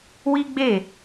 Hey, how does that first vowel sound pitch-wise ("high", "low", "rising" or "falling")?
high